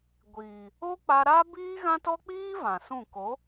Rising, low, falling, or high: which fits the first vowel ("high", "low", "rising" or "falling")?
low